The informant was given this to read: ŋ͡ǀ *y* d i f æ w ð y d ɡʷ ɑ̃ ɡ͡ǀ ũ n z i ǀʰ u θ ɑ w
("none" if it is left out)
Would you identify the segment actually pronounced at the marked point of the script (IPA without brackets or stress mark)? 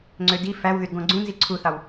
ø